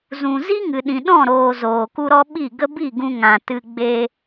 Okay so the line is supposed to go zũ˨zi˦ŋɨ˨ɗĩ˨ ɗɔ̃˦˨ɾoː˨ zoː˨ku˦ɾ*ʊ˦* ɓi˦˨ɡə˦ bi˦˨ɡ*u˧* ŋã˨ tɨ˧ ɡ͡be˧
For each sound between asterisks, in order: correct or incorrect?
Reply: incorrect, incorrect

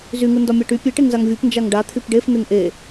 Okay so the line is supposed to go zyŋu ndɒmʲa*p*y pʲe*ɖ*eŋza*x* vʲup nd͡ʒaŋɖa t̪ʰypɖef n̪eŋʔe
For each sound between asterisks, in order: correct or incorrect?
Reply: incorrect, incorrect, incorrect

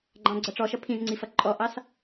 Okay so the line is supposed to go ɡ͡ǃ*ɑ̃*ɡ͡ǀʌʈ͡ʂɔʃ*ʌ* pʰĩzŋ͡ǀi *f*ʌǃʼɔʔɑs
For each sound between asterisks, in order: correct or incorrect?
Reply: correct, correct, correct

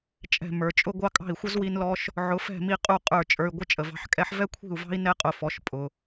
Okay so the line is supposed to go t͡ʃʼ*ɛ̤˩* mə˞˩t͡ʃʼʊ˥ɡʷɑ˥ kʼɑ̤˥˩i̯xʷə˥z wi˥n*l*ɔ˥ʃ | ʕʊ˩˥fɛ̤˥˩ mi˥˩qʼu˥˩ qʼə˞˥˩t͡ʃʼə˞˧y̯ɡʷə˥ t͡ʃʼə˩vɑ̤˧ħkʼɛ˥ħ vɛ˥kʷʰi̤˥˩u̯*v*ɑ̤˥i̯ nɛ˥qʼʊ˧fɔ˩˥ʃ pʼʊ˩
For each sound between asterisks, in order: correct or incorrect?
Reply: incorrect, correct, correct

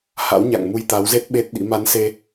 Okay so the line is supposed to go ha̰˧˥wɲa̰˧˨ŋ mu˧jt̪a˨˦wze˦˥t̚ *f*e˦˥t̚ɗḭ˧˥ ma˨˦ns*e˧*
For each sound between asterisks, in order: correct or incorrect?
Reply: incorrect, correct

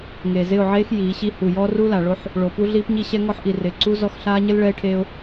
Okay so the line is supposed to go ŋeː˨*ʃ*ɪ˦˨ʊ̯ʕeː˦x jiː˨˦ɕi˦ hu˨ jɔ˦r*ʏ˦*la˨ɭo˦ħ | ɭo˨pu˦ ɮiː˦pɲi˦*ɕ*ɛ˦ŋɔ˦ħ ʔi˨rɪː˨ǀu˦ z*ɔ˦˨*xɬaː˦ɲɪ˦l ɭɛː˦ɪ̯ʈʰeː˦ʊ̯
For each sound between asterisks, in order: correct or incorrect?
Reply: incorrect, incorrect, correct, correct

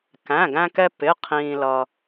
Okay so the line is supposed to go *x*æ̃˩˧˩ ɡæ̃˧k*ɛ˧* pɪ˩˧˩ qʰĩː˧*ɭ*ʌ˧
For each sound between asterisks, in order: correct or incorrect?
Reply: incorrect, correct, incorrect

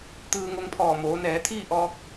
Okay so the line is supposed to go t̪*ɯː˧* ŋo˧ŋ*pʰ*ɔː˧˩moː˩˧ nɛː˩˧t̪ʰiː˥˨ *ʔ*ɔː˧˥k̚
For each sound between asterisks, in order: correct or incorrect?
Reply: correct, correct, correct

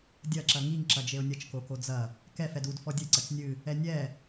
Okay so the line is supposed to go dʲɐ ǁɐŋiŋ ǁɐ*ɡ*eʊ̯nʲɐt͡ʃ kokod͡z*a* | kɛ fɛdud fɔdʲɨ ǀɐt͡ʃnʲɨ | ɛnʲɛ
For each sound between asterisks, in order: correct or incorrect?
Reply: incorrect, incorrect

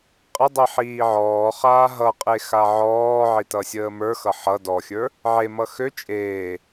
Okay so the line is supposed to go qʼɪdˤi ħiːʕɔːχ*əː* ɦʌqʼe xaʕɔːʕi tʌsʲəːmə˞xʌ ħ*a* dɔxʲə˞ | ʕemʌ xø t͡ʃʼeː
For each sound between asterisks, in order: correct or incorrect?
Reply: incorrect, incorrect

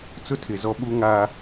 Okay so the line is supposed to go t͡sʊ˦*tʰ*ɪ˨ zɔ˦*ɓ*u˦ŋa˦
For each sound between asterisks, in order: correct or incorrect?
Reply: correct, correct

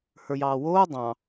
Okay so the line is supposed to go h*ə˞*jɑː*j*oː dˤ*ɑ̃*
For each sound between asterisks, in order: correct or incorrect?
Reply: correct, incorrect, correct

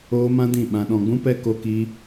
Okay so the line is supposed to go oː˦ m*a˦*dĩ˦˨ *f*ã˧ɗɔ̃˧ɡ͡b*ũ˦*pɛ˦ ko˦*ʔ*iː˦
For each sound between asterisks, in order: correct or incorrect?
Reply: incorrect, incorrect, correct, incorrect

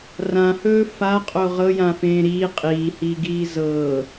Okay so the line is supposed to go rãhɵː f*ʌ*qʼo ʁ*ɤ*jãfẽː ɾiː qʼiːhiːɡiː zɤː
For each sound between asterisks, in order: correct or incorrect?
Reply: incorrect, correct

